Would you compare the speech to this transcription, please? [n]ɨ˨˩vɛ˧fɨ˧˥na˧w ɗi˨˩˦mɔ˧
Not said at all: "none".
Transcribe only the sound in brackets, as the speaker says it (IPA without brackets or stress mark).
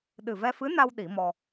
ɗ